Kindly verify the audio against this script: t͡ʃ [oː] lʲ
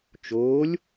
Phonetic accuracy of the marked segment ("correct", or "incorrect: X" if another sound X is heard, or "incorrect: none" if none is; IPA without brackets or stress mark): correct